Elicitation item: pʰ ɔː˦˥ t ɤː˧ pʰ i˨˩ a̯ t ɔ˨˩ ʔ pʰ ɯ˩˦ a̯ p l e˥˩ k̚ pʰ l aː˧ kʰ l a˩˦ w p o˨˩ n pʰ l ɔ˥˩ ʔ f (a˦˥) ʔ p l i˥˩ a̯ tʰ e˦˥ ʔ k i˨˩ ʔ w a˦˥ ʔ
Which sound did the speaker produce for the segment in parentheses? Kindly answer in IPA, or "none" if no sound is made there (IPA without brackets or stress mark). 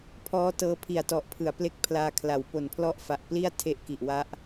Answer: a˨˩